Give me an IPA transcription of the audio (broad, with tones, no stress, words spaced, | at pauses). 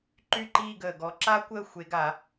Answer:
ǃy˥˨ǃiː˥˨ ɡəː˨˩ɡɔ˨˦ ǁa˥kʷəː˥˨xʷe˨˦ɡa˨˩˦